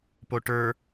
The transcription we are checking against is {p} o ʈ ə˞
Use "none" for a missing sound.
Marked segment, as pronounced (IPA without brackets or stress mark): p